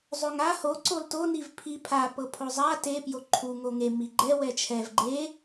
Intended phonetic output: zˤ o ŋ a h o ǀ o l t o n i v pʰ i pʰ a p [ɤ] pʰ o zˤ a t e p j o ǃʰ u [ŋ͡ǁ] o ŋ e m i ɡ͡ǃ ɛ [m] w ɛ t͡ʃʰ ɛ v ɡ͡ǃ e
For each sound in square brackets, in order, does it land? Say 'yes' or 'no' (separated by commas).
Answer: yes, no, no